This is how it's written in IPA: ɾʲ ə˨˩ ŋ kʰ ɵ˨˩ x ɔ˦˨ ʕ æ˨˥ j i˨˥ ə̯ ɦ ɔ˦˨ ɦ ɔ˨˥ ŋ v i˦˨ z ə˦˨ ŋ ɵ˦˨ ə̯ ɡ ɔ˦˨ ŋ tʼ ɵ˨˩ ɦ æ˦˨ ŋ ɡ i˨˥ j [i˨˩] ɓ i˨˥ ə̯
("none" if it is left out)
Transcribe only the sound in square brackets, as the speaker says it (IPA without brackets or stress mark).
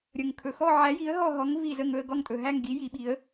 i˨˥